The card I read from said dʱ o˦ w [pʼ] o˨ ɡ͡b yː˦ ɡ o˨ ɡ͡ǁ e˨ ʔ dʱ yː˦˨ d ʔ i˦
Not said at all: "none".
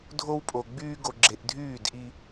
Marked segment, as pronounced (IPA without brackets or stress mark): pʼ